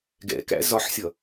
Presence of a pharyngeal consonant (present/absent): present